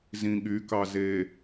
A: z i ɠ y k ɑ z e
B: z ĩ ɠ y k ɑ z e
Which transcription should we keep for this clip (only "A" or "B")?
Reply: B